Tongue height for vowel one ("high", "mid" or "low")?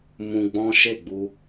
high